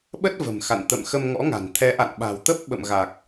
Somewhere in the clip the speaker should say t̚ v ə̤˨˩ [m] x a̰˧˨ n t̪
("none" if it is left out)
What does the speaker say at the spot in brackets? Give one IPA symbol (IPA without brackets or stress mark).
m